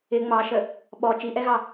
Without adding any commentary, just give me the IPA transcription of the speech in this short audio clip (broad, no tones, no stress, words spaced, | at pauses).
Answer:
ɪ ŋ͡mɑʃə | ɓɔ t͡ʃiʔɛɣɑ